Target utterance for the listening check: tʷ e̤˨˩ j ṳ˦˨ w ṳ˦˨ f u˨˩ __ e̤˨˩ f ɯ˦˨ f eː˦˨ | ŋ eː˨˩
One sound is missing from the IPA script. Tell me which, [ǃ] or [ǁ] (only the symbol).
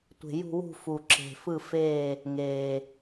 ǁ